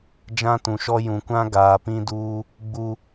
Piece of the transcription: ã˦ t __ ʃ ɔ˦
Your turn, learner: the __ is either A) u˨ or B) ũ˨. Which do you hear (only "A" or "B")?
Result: B